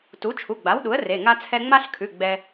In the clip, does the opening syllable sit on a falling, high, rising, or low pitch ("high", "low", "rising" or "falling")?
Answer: rising